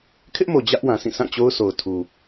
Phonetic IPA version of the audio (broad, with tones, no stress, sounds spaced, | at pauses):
kʰ ɪ˦ ʔ m o˨ d͡ʑ ä˦ ʔ w ã˨ s ĩ˦˨ sʰ ã˦˨ t͡ɕ o˦ ʊ̯ sʰ o˨ ʊ̯ tʰ u˨